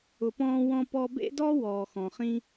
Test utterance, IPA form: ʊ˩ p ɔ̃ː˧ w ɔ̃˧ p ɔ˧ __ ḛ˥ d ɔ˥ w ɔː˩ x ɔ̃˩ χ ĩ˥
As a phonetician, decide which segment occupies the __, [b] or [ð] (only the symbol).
b